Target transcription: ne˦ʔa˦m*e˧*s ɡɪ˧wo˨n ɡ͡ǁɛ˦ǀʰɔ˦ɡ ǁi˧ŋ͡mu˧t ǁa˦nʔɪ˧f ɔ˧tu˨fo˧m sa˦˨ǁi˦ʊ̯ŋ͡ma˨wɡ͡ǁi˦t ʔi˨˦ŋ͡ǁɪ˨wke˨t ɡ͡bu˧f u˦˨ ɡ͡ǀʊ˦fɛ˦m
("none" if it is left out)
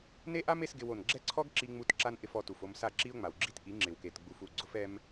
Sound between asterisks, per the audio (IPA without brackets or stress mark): e˧